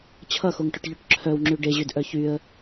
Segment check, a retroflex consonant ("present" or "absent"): present